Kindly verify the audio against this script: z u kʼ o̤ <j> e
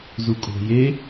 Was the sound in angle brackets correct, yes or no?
yes